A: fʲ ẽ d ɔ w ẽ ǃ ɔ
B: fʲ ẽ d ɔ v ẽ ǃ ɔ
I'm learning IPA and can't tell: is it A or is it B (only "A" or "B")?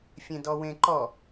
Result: A